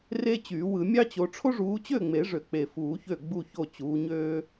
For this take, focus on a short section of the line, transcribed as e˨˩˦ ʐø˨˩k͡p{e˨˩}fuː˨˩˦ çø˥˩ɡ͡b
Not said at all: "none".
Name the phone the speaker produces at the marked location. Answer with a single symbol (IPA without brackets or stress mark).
e˨˩